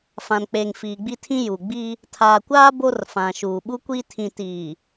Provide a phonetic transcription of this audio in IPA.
fã˨nk͡pe˨ŋ fiː˨ɡ͡bi˦tʰĩ˦ juː˨ ɡ͡biː˦ | tʰaː˨kʷaː˦ bo˦rfã˨ʃuː˨ ɓu˦kʷiː˦ tʰĩ˨tiː˨

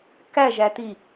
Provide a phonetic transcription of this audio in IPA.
kæʒæti

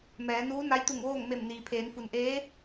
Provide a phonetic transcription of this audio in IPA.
mɛː˩˧nuː˧˥ na˧˥jt̪u˧˩ŋʋoː˥˨ŋme˧˩m niː˩pʰeː˩˧n fu˩nʔeː˧˥

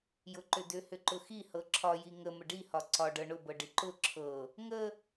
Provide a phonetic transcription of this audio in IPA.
jʊǃʏdʏ hʏǃʊxi hɤǁʰɒji ŋə məɖihɒ ǀɒɖɤ ɳʊbɤ ɖiǃʊ ǁʰɤ | ŋə

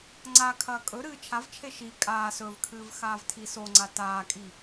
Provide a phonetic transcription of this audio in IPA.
ŋ͡ǀakʰɐː kʼɵɾɨː t͡ʃʰavt͡ʃʰe ʃi kʼaː sɵvkʰɨːv xaːvtʰisoŋ͡ǀa taːkʼi

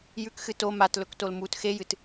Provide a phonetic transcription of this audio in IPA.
jʉkxɨ to matlɵktol mut xejɨt

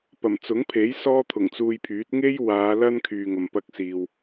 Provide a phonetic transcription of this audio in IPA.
pɐ˨˩mt͡sʊ˨˥ŋpʰe˨˥j sɔː˥t̪ʰʊ˨˩ŋt͡suː˧jpʰyː˨˥t̚ ŋe˥jwaː˨˧ lɐ˥n kʰyː˨ŋɐ˨mpɐ˧k̚siː˨w

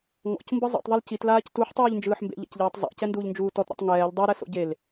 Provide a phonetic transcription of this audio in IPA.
ŋɔ̰cmbɯ zˤṵtˤðˤul citlaːc tuħtˤuːʎnd͡ʒɯːħ mbḛʎa̰cʎɛːtˤ zˤa̰cɛnduːʎnd͡ʒuː tɔtɾo̰tˤ ŋɛːʎ dˤɤɾɛso̰ ɟel

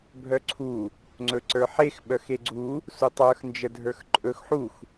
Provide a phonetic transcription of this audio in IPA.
bʱœǀʰu | ŋ͡ǀɵǀə˞ħex ɓœxeɡ͡ǀu | sutˤə˞x nd͡ʒədʱə˞xǃʼɵx ħux

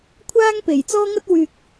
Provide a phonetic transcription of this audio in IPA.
kʷʰaː˥ŋ pe˨˩jt͡sɔː˧ŋɐ˧t̚ wyː˨k̚

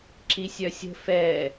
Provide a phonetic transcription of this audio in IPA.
ǁisʲœsʲə̤ fɛ

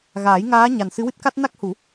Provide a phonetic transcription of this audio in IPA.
ɣaː˨˩˦jŋaː˧˥ɲa˨˩n sɨ˧˥wɨ˦˥t̚ka˦˥t̚ na˦˥k̚hu˨˩˦

